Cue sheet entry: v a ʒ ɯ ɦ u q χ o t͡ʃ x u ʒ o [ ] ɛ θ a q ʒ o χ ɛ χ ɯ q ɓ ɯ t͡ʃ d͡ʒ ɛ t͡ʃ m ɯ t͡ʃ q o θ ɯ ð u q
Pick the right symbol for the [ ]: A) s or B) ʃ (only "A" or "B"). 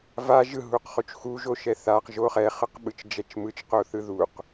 B